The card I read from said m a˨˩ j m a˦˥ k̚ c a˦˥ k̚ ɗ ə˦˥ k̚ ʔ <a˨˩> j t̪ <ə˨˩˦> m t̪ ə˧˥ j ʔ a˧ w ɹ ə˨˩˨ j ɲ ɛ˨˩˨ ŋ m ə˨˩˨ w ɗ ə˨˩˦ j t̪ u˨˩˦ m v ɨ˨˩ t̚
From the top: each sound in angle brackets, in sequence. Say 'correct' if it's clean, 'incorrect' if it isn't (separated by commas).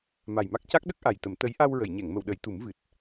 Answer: correct, correct